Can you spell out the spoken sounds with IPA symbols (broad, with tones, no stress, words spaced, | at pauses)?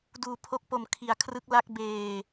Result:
duː˧pʰo˦˥k̚po˧m kʰi˧a̯kʰrɯ˦˥k̚ la˦˥k̚ beː˧